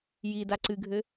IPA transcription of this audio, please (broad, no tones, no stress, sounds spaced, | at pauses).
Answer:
j i d a ǀ ɨ ɡʱ ɘ